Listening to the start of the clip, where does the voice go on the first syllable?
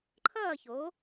falling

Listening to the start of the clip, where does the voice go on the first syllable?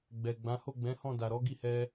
low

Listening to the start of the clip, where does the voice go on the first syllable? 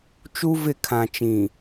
high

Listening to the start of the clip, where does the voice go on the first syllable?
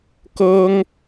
high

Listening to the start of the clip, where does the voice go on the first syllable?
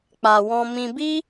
low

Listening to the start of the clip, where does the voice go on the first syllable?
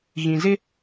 low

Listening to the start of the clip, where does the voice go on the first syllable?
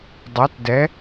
rising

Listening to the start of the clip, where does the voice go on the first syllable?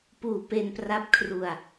low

